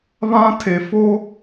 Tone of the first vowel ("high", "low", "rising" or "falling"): high